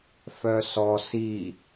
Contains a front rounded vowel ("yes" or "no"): yes